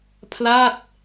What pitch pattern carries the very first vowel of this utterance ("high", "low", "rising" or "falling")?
falling